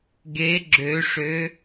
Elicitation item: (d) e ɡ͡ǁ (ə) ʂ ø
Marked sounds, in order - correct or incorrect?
incorrect: ɡ, incorrect: ø

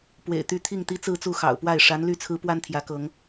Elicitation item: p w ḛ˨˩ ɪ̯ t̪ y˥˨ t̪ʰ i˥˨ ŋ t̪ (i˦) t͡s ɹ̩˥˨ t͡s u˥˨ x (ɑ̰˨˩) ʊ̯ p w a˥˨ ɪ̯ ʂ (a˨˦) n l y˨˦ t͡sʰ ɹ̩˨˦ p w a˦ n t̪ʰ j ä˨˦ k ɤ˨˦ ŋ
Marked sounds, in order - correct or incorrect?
correct, correct, correct

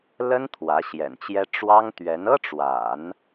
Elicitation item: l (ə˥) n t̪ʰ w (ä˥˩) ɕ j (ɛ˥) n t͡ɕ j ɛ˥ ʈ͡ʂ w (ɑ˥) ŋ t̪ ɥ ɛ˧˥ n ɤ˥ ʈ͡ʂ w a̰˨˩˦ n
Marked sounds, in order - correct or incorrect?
correct, incorrect: ä˧˥, incorrect: ɛ̰˨˩, correct

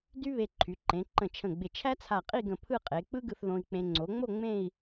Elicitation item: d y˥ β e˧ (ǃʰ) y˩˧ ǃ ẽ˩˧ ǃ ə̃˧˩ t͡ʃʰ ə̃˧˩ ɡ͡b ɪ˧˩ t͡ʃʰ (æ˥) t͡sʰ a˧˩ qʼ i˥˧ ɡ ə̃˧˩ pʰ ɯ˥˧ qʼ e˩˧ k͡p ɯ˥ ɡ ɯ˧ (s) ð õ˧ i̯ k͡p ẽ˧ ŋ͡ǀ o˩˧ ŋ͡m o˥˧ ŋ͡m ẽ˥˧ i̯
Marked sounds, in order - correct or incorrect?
correct, correct, incorrect: θ

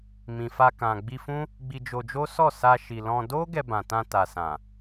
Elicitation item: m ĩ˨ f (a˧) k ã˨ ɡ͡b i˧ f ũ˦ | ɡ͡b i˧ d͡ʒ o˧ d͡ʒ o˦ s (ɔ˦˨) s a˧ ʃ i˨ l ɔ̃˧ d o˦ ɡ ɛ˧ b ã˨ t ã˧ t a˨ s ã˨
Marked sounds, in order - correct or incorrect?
correct, correct

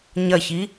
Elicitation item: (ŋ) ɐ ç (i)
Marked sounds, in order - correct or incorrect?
incorrect: ɲ, correct

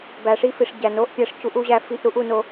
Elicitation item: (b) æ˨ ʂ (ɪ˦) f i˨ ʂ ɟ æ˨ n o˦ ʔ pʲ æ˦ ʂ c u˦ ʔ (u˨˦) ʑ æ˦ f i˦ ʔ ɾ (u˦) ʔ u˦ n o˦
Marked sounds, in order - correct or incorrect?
correct, incorrect: i˦, incorrect: u˦, correct

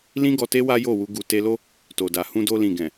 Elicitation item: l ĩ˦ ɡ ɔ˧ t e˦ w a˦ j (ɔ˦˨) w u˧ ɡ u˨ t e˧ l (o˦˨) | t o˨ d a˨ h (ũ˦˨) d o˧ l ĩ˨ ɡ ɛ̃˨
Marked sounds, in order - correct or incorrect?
incorrect: o˦˨, incorrect: o˦, incorrect: ũ˧

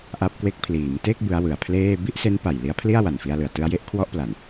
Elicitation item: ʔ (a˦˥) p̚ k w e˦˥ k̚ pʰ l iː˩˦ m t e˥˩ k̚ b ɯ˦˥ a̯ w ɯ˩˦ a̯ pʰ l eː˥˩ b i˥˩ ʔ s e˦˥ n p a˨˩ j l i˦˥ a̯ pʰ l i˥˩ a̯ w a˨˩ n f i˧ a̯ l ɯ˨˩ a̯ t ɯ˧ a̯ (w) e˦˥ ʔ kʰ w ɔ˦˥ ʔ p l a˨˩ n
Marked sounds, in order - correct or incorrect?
correct, incorrect: j

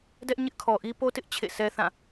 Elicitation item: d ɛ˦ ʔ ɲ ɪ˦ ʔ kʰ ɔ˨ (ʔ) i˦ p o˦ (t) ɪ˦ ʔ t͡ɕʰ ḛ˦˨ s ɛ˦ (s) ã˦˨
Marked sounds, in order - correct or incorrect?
correct, correct, incorrect: θ

